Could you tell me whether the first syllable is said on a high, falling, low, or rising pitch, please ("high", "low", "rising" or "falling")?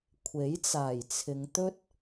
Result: rising